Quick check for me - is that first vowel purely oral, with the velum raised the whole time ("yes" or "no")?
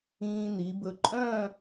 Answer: no